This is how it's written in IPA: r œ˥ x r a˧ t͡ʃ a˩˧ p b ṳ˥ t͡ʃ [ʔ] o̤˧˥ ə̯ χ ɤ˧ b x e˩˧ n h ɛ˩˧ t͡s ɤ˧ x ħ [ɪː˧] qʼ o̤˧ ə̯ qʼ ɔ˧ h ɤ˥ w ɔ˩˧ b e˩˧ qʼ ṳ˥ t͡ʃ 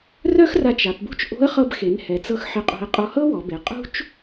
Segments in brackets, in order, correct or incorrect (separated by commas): correct, incorrect